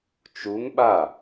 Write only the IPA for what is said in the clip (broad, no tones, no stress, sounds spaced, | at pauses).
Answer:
t͡ʃ u ŋ ɓ a